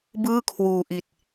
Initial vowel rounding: unrounded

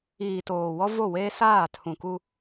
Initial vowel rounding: unrounded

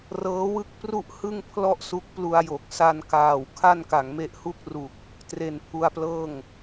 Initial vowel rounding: unrounded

